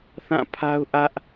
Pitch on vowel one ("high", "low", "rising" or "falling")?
falling